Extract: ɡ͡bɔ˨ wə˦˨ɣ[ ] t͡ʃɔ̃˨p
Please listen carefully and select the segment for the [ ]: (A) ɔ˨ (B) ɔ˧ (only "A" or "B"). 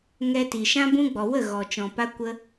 A